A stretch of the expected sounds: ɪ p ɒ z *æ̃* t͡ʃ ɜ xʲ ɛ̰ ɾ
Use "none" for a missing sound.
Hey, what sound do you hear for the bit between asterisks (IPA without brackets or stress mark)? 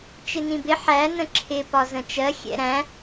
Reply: ə̃